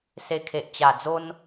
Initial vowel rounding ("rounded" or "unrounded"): unrounded